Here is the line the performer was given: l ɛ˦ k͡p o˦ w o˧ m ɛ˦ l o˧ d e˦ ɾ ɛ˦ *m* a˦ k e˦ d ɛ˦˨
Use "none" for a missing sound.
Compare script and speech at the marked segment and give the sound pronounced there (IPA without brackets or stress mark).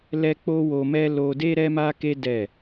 m